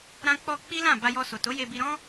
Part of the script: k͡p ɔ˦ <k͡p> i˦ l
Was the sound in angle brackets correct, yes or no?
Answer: yes